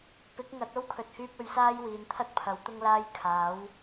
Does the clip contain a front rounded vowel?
yes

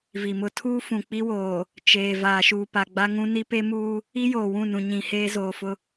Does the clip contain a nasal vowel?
yes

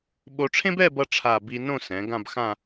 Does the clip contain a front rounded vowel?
no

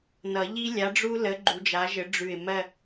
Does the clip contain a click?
yes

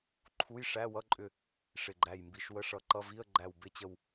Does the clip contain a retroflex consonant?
yes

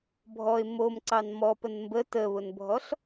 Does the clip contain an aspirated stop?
no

